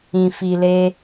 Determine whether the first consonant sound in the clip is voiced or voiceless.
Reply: voiceless